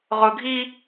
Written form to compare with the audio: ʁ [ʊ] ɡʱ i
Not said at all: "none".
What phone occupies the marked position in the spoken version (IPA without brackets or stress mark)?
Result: ʊ